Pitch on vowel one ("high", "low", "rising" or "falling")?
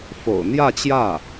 low